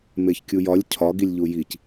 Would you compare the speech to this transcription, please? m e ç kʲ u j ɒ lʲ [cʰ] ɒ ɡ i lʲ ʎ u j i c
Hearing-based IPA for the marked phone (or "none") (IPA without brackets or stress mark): cʰ